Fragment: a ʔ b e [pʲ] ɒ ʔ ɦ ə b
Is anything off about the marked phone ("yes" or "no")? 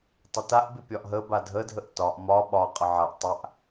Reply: no